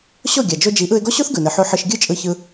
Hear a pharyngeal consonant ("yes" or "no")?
yes